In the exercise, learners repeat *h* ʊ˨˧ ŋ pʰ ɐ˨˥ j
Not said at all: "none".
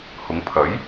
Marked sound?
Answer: h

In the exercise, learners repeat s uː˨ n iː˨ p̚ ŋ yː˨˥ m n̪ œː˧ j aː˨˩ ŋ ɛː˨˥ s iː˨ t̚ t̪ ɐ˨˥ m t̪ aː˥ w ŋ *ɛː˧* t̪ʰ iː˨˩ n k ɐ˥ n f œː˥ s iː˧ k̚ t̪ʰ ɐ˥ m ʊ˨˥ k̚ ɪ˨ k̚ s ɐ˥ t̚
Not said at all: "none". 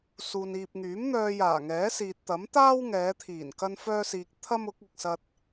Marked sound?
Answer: ɛː˨˧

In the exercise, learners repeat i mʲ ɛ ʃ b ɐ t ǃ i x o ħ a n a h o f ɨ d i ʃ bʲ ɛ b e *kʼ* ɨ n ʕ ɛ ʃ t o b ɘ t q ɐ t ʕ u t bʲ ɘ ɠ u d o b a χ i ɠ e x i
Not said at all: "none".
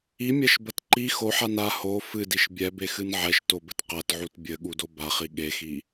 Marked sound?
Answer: x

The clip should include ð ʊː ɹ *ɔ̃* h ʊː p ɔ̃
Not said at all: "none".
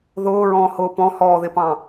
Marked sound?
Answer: ɔ̃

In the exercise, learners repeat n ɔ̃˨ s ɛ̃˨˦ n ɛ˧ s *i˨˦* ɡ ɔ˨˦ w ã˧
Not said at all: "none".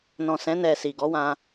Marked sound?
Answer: i˨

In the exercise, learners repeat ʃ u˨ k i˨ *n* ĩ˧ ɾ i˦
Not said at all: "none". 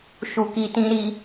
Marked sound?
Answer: t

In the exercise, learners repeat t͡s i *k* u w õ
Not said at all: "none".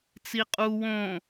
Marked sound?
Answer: qʼ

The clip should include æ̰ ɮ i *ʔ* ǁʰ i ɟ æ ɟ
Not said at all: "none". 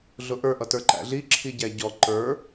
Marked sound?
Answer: none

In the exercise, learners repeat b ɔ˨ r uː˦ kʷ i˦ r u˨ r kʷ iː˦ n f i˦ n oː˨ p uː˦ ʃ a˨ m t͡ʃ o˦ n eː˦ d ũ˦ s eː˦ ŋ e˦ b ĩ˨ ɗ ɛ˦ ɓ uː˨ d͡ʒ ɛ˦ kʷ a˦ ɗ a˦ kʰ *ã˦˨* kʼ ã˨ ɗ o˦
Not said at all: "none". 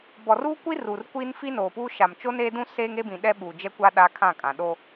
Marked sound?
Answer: ã˦˨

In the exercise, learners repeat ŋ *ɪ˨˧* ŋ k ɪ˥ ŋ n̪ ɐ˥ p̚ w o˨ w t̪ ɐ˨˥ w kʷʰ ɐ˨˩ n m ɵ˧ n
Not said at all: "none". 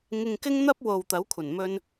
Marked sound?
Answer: ɪ˧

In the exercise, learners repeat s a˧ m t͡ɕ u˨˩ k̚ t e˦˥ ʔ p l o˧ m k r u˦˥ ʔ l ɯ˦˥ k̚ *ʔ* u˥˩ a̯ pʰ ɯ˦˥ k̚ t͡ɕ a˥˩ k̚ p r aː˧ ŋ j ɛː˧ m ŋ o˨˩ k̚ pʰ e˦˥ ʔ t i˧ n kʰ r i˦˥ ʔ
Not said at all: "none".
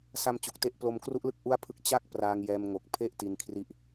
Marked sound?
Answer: ʔ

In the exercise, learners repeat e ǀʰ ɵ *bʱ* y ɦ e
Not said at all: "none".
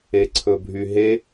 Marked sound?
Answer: bʱ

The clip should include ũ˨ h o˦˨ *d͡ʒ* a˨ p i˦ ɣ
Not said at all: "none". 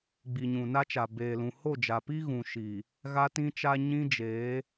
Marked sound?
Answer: d͡ʒ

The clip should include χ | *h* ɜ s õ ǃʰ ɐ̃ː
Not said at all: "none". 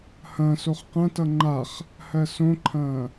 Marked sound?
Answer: h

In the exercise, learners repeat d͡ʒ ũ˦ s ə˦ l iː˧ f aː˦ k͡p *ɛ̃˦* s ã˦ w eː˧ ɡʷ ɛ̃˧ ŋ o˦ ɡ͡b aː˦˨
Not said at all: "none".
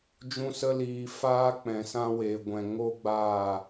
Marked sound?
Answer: ɛ̃˧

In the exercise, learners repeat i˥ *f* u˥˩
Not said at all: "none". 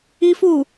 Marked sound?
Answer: f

